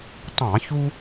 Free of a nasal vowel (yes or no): no